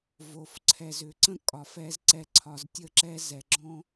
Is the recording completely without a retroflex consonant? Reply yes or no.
yes